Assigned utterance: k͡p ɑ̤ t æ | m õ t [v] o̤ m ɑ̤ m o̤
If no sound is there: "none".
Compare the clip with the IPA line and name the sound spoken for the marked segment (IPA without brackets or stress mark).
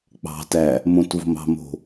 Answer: v